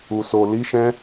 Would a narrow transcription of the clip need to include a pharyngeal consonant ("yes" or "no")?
no